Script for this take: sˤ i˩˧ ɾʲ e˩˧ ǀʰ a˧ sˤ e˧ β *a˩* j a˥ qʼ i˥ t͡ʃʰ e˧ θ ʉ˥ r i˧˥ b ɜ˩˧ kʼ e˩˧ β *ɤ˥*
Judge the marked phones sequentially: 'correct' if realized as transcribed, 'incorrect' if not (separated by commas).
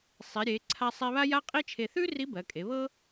incorrect, correct